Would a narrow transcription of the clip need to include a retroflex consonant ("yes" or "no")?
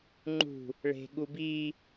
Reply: yes